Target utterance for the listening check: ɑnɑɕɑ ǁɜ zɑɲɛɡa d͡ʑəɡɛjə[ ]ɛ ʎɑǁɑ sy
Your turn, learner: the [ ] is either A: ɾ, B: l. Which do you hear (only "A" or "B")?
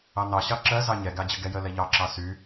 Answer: B